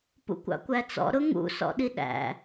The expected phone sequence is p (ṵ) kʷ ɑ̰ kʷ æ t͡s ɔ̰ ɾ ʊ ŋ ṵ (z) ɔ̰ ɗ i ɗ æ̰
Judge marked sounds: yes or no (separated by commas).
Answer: yes, no